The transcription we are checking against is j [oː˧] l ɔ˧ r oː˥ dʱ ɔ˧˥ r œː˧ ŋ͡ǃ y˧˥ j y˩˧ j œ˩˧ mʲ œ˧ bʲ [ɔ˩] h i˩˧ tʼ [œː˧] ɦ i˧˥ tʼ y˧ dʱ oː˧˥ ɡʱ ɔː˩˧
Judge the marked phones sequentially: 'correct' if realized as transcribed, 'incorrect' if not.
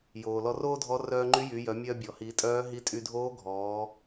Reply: incorrect: oː˩, correct, incorrect: œː˧˥

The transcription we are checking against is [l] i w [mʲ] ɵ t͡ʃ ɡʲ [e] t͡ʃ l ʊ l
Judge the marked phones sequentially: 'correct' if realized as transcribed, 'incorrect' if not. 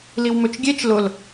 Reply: correct, incorrect: m, correct

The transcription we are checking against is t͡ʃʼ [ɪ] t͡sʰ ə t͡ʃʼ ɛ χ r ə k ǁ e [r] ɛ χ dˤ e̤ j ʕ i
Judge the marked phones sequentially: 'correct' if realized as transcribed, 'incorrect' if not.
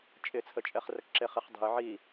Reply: correct, incorrect: χ

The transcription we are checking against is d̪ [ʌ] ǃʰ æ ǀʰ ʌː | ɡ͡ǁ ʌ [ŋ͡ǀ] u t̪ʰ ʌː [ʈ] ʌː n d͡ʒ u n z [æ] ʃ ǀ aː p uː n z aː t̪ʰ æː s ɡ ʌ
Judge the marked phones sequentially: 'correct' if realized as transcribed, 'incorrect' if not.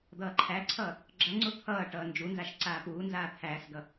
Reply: incorrect: ʌː, correct, correct, incorrect: a

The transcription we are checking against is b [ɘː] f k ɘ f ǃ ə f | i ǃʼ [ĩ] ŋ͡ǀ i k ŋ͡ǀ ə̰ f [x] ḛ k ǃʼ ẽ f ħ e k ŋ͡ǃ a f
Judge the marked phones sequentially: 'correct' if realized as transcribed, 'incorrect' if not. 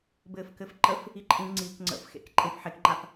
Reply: correct, correct, correct

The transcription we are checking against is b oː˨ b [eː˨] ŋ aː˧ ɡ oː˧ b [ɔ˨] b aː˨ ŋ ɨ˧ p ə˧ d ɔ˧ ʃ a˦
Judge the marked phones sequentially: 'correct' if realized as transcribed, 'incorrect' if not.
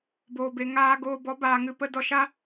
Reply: incorrect: e˨, incorrect: ɔ˨˦

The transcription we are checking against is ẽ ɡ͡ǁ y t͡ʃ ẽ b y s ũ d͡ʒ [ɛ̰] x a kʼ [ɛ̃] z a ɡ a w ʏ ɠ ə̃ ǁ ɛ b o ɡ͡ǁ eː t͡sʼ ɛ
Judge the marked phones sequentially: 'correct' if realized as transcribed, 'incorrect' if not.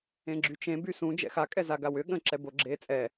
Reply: correct, incorrect: ɛ

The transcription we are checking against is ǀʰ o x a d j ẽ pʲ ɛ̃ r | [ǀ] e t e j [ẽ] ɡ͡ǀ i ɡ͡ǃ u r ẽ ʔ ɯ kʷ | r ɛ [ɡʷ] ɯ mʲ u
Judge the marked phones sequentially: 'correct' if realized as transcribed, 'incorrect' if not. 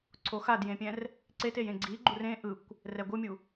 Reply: correct, correct, correct

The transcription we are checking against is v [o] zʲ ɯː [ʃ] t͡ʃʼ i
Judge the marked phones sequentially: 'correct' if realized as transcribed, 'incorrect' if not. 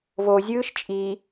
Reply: correct, correct

